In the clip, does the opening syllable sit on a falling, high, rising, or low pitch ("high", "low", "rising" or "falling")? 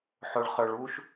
low